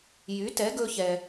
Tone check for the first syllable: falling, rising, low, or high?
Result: rising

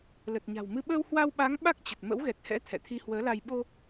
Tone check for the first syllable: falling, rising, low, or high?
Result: low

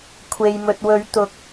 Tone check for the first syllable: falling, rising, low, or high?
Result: low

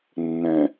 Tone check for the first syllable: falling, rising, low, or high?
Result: low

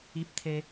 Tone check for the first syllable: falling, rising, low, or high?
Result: high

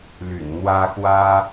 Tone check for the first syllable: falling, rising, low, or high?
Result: low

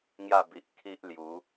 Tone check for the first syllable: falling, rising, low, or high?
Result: falling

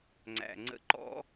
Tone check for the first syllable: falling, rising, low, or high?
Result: low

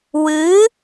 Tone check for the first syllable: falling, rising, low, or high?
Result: rising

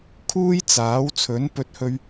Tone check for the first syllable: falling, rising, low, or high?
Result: high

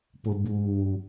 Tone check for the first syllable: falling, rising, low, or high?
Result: low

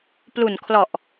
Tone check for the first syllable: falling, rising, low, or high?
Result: low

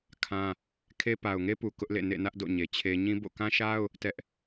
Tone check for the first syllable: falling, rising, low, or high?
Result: high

